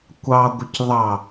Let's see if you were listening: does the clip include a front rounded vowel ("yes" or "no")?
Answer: no